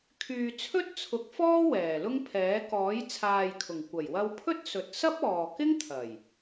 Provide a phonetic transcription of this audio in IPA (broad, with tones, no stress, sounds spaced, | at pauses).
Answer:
kʰ yː˨ t͡sʰ ɵ˥ t̚ t͡sʰ ʊ˨˥ k̚ f ɔː˥ w ɛː˨˩ l ʊ˥ ŋ pʰ ɛː˨˥ k ɔː˨˥ j t͡sʰ aː˨ j kʰ ʊ˨˩ ŋ kʷ ɐ˨˩ j w ɐ˧ w pʰ ɵ˥ t̚ s ɵ˨ t̚ s ɐ˥ p̚ ɔː˨ k ɪ˥ ŋ t̪ʰ ɐ˨˩ j